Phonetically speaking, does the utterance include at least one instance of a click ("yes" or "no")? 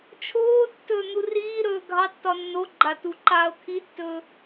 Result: yes